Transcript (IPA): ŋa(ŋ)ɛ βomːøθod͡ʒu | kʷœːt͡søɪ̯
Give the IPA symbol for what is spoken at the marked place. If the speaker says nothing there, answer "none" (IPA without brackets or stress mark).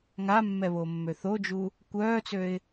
mː